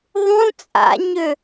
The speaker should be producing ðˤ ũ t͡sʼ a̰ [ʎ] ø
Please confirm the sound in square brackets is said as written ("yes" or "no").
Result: no